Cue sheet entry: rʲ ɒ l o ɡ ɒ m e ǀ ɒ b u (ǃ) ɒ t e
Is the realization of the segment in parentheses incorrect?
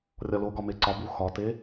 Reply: yes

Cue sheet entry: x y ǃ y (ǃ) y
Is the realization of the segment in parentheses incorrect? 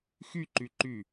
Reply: no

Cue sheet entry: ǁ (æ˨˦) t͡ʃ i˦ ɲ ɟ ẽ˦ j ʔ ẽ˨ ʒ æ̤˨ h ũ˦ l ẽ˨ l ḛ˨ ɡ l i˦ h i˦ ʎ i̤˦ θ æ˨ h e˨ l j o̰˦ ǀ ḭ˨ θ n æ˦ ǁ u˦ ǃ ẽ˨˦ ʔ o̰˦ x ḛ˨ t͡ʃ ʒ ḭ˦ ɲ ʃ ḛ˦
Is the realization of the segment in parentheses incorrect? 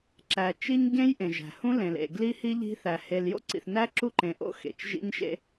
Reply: yes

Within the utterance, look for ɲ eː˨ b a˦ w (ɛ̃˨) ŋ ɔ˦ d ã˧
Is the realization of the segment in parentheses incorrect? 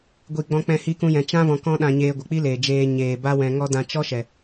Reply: yes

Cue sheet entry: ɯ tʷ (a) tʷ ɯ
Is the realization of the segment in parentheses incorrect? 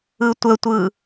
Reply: yes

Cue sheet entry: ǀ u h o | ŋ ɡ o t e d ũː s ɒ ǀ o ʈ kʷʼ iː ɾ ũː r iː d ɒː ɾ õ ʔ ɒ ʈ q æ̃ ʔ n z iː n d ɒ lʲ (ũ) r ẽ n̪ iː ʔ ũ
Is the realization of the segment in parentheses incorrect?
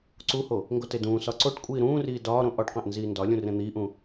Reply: no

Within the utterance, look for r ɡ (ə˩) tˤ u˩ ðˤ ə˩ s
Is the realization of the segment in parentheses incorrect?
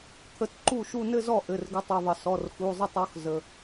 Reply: yes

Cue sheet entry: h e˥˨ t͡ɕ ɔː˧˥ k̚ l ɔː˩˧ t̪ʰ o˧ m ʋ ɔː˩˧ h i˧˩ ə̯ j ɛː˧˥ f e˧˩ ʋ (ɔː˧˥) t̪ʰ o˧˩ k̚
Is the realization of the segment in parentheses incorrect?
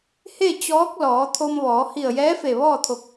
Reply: yes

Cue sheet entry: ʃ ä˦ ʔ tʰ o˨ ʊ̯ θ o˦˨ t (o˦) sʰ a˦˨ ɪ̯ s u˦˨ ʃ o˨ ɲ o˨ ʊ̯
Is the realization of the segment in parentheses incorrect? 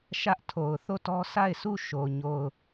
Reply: yes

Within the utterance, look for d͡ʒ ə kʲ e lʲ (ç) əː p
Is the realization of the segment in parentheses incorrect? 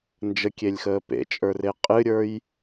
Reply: yes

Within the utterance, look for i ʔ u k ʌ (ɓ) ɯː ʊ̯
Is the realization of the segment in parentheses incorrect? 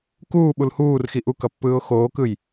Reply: yes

